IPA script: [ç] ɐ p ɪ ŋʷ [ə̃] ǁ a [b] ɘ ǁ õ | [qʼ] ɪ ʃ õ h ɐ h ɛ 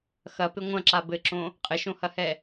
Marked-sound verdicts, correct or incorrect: incorrect, incorrect, correct, correct

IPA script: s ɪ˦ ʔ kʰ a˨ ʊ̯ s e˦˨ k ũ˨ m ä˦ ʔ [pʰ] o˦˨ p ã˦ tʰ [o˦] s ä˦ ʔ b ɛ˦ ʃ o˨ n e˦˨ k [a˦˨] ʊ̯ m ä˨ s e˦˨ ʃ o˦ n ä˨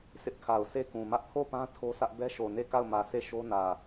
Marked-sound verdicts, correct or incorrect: correct, correct, correct

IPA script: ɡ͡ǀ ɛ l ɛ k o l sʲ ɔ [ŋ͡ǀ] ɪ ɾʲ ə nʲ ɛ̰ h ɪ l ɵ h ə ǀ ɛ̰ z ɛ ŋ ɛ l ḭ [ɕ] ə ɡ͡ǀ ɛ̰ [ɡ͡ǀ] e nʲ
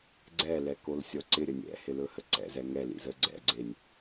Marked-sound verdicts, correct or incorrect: incorrect, incorrect, correct

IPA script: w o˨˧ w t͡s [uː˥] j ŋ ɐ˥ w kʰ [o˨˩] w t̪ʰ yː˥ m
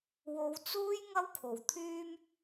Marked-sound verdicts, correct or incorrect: correct, correct

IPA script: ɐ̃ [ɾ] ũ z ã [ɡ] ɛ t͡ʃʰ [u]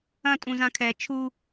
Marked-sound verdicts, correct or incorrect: incorrect, incorrect, correct

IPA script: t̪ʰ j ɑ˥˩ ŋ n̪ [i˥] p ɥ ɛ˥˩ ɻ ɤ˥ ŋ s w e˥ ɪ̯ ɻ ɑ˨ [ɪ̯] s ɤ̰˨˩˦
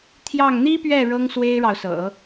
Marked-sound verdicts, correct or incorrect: correct, incorrect

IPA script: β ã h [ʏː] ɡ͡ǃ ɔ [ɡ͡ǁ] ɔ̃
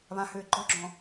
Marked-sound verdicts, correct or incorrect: correct, correct

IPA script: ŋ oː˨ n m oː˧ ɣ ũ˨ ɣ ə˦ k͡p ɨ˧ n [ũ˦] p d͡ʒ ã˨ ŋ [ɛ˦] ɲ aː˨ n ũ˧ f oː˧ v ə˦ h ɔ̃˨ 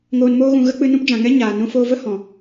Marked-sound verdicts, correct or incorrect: correct, correct

